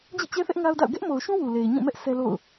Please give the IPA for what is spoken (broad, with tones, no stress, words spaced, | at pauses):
d͡ʑḭ˦˨t͡ɕɛ˦θɛ˦ʔ ŋa˦ʊ̯da̰˦˨ʊ̯ ɡɛ˦ʔmo˨ʊ̯ʃũ˦ wu˨le˨ɪ̯ɲũ˦˨mɛ˦ʔ sʰɛ˦lo̰˦˨ʊ̯